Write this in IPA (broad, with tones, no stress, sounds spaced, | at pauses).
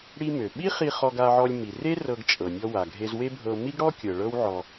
ɽ i˧ m ø˩ ɓ i˥ χ i˧ χ ɔ˧ ɡ a˧ ʕ ɔ˧ lʲ m i˩ r e˥ r ɤ˧ ɡ t͡ʃʼ ɤ˩ nʲ ɔ˧ w a˩ ɡʱ e˧ z w e˥ bʱ ɤ˧ m i˥ ɡ ɽ ɔ˥ kʲ ɤ˩ ɭ ɤ˥ w ʕ ɔ˧